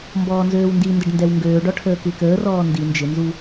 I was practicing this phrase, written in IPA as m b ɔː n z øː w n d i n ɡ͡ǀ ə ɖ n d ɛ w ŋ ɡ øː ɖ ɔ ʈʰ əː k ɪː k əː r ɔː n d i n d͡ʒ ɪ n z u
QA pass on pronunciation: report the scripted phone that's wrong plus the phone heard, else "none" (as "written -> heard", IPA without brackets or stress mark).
ɡ͡ǀ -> d